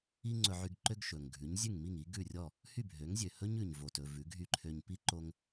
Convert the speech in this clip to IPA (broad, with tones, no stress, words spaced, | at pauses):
i˥ŋ͡ǀɵ˧ ʕy˧ɡ ǃø˧ɡ ʃɵ˩ŋ ɡʱʉ˩˥ɲzʲʉ˥˩ŋmi˥˩ŋ i˩˥ɡʉ˥˩rʲɔ˥˩ | hy˥˩bʱø˩˥ŋzʲø˩ hɵ˥ɲʉ˩ɲ vo˩tɵ˩ vʉ˩˥ɡʱy˥˩ǃʰø˧ɲ pi˥ǃo˧ŋ